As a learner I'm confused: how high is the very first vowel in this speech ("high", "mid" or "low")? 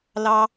low